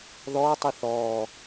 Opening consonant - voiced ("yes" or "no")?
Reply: yes